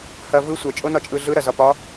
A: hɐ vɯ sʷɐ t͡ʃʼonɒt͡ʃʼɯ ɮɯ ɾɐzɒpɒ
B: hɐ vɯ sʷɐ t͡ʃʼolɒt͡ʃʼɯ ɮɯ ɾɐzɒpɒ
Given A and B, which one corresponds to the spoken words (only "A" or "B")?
A